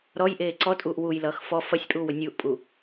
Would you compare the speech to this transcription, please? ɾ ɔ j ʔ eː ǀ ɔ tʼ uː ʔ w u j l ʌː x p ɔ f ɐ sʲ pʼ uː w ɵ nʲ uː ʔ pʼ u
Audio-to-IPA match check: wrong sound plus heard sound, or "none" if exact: p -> f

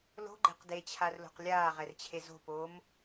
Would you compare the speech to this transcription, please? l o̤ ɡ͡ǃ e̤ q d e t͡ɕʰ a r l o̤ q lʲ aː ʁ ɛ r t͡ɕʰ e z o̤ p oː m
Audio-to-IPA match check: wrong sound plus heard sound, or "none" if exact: none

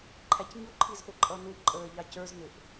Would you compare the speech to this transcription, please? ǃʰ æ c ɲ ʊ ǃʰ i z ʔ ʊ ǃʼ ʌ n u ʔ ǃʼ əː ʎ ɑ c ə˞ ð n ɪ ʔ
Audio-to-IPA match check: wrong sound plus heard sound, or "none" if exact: ð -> z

